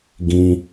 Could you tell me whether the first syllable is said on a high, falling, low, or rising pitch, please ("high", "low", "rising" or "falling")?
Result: low